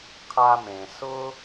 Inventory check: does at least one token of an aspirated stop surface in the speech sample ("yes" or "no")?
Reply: yes